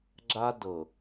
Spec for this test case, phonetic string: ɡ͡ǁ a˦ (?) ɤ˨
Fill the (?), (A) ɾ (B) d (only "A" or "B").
B